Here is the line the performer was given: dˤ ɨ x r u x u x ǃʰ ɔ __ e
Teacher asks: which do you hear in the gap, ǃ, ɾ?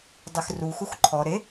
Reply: ɾ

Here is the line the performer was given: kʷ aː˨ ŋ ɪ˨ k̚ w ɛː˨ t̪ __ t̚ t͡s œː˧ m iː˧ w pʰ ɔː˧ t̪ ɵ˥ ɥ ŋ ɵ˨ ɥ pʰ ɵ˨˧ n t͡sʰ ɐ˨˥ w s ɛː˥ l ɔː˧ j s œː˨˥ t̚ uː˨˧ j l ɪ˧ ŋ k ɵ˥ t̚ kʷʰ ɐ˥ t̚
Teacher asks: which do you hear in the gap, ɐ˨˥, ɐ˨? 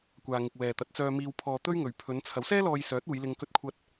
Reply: ɐ˨˥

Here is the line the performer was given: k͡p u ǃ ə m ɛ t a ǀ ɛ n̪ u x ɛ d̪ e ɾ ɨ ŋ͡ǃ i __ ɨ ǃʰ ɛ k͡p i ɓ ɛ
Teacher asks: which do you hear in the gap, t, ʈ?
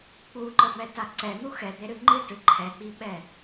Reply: ʈ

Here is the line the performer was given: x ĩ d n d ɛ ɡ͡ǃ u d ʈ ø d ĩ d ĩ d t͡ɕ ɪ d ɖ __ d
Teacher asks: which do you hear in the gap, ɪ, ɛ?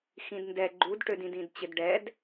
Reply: ɛ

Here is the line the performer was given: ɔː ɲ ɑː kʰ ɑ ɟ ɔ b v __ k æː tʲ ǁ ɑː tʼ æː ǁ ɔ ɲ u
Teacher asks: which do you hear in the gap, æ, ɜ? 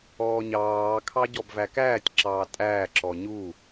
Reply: æ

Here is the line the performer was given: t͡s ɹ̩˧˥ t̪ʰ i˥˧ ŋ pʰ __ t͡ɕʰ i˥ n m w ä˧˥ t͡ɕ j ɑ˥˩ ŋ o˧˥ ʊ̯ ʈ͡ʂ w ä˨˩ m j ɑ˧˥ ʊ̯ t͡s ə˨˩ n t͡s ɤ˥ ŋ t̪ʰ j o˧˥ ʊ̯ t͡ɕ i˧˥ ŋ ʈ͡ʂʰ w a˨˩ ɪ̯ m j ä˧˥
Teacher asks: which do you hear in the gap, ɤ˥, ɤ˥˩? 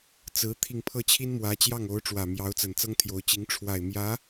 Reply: ɤ˥˩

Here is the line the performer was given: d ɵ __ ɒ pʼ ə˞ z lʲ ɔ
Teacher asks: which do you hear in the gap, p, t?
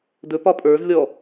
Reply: p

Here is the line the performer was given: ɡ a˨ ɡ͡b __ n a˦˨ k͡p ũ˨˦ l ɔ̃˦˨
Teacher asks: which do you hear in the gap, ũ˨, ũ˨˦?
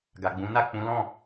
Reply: ũ˨˦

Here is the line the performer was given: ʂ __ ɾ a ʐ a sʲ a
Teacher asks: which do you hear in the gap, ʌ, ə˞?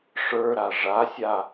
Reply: ə˞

